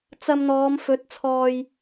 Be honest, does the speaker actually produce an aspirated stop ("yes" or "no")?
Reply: yes